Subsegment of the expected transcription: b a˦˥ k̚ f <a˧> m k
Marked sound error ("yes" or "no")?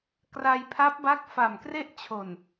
yes